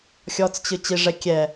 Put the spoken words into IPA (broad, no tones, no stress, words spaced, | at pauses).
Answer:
xʲɔt͡st͡ɕɨ t͡ɕiʐɛ kʲɛ